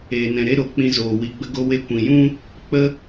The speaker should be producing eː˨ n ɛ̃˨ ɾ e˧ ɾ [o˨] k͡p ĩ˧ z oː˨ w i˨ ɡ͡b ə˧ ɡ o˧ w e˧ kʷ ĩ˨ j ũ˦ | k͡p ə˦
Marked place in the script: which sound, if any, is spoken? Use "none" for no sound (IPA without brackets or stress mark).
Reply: o˨